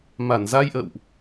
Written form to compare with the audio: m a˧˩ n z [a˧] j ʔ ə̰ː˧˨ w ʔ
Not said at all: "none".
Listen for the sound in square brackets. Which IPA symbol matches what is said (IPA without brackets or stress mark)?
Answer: a˧